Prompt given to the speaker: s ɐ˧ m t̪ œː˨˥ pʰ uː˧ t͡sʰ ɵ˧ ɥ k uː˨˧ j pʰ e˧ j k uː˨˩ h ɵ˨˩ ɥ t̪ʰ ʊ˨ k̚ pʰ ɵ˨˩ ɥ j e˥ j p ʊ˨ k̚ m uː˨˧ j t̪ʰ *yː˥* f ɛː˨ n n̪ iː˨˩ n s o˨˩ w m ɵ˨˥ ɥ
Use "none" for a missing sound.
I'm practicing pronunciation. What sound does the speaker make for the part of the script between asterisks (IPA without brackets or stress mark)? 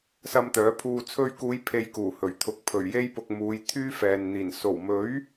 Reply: yː˥